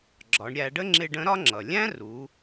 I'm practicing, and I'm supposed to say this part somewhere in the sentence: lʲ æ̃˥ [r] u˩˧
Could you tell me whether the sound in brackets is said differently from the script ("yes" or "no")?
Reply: no